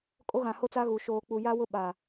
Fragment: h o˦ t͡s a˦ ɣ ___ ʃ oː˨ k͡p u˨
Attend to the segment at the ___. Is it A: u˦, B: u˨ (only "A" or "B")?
B